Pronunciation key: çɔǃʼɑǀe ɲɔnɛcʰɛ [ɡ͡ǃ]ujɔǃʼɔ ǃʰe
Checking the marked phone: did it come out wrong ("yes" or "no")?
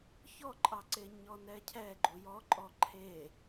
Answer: no